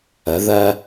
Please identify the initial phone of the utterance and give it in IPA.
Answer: ə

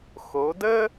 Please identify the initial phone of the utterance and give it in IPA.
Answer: x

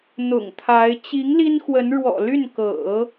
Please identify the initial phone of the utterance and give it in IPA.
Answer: n̪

